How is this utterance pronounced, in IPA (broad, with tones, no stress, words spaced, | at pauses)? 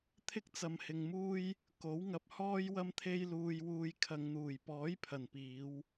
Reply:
t̪ʰɪ˥k̚t͡sɐ˨mhɪ˨ŋmuː˥j | ko˨˥w ŋɐ˧p̚hɔː˥jwɐ˥m t̪ʰe˥j luː˧jwuː˧jkʰɐ˨˧ŋn̪uː˨˩j pɔː˨˥jpʰɐ˨˩n piː˨˧w